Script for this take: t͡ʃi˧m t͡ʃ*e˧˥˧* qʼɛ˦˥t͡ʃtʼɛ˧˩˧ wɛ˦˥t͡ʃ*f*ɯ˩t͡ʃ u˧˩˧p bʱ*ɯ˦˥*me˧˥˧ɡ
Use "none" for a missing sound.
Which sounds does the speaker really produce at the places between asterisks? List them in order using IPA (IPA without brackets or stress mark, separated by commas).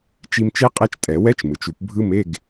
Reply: e˦˥, m, ɯ˦˥